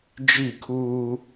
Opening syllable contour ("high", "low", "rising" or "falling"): falling